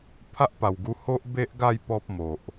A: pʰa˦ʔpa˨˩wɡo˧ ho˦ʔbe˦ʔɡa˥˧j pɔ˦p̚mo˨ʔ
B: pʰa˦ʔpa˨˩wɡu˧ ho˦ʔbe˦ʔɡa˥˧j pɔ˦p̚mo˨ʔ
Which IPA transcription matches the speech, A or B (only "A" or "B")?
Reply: B